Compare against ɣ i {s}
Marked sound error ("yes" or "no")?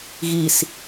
no